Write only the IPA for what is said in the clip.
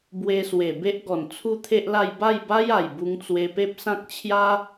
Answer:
bwe˧swe˨˩ be˦ʔɡɔ˨˩n t͡sʰu˥˧t̪ʰe˦ʔla˥˧j ba˥˧jba˦ja˨˩j bu˧ŋt͡swe˧ pe˦p̚sã˦k̚ t͡ɕʰja˦

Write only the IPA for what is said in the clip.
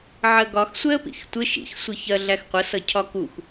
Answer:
ʕɜɡɒx sʷɛə̯pḭxtʷɪ ʃḭx sʷiçɜɮæxqʷə sʌcʰɒkux

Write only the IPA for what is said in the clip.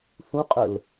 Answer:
θũqʼəl

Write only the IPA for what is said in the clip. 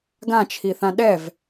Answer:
ɡãt͡ʃʰiθã ɗɛv

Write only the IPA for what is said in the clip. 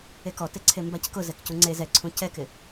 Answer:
ekɔteǀʰe mbackʊ zɛkcuŋ͡ǀe zɛǀʰũ cɛkɪ

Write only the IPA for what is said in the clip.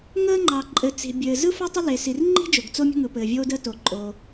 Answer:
ŋəː˥ŋ͡ǃɑ˩ ǃʼɘ˩ t͡si̤˩bʲɘː˩ zɯ˥fo˥tˤə˥ le˩si˩rŋ͡ǃi̤˥ d͡ʒo˩ɡt͡so˥mʲə̤˥ ŋɯ˩pɘː˩vʲoː˥dəː˥ to˩ǃʼo˩

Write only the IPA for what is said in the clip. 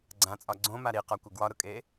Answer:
ɡ͡ǀãt͡sʼɒ ɡ͡ǀõ maɾiqɒkʷə ɡwɒɾʊkʼe

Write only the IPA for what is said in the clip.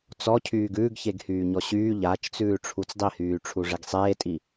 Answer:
t͡sɔcʰyːɡ ʉːɡçeɡhyːɲɔ ɕyː ʎat͡ʃt͡sʉː ʈ͡ʂʰut͡sdˤihyː ʈ͡ʂʰuʐeɡsˤeːtʼi

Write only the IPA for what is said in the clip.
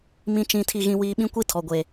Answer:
mĩ˦ t͡ʃĩ˦tʰi˦ɣĩ˦wiː˦ ɓĩ˦kʷi˦tʰɔ˨ɡʷe˨

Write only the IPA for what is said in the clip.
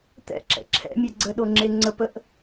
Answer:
t̪ɛ̰ǁɛ̰ ǁʰɛ̰mʲɛ ɡ͡ǀəɗoŋ͡ǁe ŋ͡ǀəpəʔ

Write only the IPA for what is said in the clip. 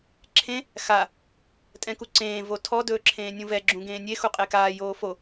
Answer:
ǁʰẽ | xa | tʼɛ̃kuǀẽː votʰɔ dɵːǁʰẽːnʲũvɛ ɡ͡ǁũɡẽːnʲe xuqʼekaː joːfo

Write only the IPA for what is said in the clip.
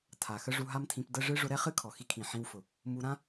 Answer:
tʰa˨ xə˦ʐu˧ɦa˦mtʰĩ˧p də˧ ʐɨ˧ ʐʊ˧ ɾɛ˦χɨ˦kʰɔ˨xi˧ kʰĩ˨ ħĩ˧wfʊ˨ | mu˧ɾã˦

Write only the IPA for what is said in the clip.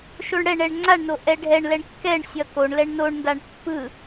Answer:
ʃoɳɽɛɳɛɳ ŋ͡ǀaɳno ʔɛɖʱɛɳ lɛɳkːɛɳ sʲʌkoɳ lɛɳnoɳndaɳ pːɯ

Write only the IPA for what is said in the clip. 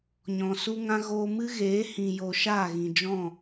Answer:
ɲɔ̃˨su˦ŋã˦ ɣoː˧mɨ˦ɣeː˨˦ hĩ˨jo˨ ʃaː˦˨ɣĩ˨d͡ʒɔ̃˦˨

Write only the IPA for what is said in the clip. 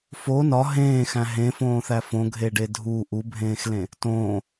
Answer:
fo nɒ ɦẽːxæ̃ ɦẽfõːθæ fõɡʱeɖe dʱu ʔubʱẽːxlẽ | tõː

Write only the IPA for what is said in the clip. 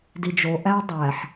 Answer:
did͡ʒo ʔæ dˤæħ

